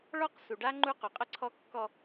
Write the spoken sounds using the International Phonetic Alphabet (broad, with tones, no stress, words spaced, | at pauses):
ɭɔ˦qsu˨ɖa˦ ŋ͡ǃu˦qu˨qʼə˦ǀʰɔ˦ kːɔ˦